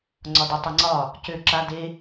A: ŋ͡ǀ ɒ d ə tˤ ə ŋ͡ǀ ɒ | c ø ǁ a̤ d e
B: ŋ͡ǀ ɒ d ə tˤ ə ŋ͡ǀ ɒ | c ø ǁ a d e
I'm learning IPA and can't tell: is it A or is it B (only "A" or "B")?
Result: B